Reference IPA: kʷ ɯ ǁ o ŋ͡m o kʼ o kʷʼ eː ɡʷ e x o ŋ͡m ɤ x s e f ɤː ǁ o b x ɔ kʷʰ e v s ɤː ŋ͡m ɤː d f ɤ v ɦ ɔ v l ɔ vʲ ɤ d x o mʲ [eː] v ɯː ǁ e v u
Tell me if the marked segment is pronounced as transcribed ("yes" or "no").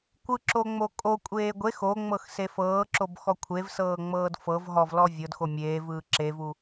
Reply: yes